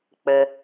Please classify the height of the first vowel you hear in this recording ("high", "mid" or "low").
mid